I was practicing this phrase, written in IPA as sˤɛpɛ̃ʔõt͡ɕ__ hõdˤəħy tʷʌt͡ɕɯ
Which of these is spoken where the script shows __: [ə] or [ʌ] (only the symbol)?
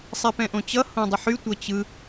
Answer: ʌ